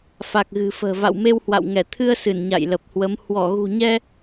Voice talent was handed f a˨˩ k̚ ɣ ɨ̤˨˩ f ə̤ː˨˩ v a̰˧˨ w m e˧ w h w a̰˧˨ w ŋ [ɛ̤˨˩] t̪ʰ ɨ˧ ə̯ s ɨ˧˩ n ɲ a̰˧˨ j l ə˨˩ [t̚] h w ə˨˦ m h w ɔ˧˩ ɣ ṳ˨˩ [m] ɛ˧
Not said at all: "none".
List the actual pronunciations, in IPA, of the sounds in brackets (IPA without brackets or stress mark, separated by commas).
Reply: ɛ˧˩, p̚, ɲ